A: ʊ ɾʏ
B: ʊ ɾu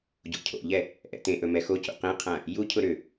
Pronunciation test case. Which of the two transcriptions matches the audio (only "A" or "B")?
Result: A